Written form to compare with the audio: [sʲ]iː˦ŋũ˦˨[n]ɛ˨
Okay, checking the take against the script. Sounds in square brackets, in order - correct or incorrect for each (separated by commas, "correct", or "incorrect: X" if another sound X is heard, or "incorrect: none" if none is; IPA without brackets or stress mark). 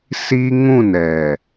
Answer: incorrect: s, correct